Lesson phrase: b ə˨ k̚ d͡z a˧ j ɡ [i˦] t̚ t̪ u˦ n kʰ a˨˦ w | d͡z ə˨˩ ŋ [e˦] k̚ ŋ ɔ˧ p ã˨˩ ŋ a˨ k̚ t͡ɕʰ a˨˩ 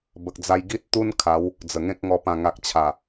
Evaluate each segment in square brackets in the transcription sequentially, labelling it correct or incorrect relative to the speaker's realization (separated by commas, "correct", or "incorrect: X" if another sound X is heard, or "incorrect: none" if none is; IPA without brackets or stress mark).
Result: correct, incorrect: ẽ˦